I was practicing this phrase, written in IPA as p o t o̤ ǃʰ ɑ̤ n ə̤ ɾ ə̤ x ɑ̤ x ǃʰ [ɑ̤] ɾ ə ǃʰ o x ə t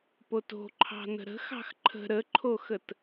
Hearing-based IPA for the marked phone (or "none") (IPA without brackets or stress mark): ə̤